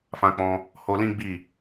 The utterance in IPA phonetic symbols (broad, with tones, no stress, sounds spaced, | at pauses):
f ã˧ k͡p ɔ̃˧ | h o˧ l ĩ˦ ɡ͡b i˦˨